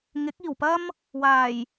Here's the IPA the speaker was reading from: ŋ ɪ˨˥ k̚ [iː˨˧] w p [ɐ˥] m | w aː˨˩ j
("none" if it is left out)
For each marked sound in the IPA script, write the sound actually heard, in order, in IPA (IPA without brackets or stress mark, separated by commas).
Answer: iː˨˩, ɐ˥